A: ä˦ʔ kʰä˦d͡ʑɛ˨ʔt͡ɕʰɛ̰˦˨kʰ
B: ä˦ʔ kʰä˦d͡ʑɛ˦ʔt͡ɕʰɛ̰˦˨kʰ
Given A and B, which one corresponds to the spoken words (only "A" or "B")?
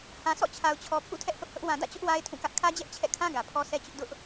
B